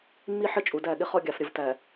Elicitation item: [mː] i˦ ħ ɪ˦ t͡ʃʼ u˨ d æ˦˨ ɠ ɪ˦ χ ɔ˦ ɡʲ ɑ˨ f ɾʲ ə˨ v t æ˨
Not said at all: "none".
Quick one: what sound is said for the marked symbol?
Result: mː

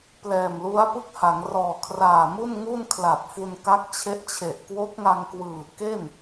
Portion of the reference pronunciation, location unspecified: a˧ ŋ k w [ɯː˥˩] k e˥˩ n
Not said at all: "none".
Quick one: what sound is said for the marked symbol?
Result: ɯː˨˩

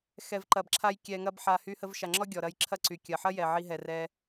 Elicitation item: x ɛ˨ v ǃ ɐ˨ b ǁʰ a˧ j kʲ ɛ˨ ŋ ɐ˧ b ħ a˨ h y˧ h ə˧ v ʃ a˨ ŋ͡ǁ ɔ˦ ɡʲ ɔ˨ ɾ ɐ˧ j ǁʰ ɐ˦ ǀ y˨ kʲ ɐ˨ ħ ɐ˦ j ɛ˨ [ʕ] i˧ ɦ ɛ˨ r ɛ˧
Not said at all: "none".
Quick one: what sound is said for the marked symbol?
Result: ʕ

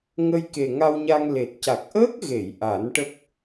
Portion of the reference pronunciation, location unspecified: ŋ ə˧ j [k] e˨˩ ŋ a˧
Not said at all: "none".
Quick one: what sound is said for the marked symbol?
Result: k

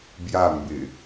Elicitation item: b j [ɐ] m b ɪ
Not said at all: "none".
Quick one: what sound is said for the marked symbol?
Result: a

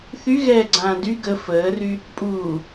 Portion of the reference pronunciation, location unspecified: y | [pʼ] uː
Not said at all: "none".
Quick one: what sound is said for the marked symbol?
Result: pʼ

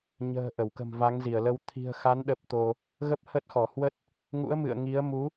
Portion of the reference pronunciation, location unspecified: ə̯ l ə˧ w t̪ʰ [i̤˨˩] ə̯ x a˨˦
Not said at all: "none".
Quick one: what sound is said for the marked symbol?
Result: i̤˨˩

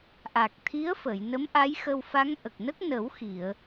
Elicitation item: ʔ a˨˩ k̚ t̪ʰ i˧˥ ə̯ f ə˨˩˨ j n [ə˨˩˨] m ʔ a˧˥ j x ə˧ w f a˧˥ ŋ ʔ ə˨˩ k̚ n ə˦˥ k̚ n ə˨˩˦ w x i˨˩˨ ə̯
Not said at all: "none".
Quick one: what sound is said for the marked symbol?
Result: ə˧˥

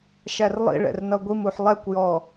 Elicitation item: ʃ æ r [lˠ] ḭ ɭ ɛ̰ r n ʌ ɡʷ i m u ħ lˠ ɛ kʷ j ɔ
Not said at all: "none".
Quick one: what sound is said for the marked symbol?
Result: lˠ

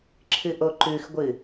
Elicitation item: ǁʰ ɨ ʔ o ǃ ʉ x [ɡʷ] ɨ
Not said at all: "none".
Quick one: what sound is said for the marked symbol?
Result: ɡʷ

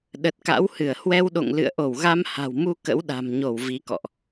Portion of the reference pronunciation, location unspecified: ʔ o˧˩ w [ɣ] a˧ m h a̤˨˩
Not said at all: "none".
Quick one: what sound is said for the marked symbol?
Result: ɣ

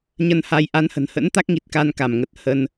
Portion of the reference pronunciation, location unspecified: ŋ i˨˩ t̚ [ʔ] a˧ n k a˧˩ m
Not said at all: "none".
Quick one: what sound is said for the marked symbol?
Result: k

